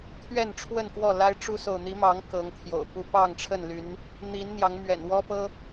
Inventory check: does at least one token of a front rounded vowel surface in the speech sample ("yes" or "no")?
yes